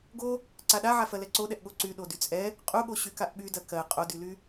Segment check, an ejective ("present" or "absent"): present